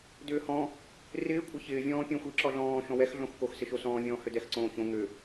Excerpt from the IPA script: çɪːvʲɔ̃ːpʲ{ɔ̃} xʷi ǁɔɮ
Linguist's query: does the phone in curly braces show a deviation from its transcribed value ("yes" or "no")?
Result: no